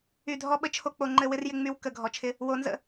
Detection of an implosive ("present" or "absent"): present